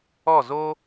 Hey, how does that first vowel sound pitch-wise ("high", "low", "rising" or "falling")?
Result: falling